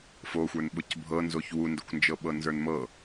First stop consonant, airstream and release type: implosive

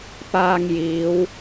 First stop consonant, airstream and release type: plain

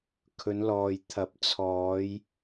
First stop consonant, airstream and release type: aspirated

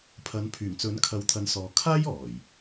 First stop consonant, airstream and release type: aspirated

